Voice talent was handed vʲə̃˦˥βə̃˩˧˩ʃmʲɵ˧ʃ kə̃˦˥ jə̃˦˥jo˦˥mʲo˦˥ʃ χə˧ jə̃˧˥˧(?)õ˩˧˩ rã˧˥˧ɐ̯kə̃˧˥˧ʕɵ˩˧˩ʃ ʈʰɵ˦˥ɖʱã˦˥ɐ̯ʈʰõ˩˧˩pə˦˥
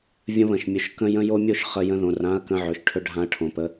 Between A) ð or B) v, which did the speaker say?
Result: A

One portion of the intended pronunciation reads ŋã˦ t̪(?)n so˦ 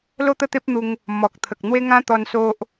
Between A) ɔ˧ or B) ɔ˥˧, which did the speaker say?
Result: A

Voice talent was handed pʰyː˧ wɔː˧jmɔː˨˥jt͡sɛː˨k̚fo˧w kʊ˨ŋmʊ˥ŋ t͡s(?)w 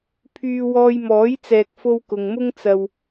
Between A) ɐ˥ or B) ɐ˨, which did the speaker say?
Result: B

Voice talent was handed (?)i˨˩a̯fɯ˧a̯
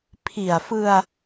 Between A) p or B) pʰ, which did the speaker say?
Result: B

